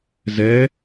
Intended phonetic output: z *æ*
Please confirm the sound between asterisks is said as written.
no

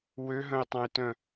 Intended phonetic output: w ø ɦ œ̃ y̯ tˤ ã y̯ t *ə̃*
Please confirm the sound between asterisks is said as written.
no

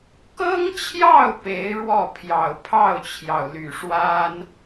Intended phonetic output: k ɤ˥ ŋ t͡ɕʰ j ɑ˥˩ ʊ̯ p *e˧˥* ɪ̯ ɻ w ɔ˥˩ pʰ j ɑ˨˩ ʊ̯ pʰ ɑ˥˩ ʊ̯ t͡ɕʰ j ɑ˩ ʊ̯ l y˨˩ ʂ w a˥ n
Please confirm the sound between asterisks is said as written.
yes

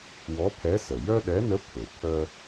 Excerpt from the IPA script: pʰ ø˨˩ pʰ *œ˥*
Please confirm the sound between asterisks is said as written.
yes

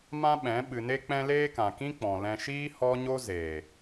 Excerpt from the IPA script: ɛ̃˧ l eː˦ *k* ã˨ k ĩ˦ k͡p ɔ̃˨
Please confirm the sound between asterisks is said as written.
yes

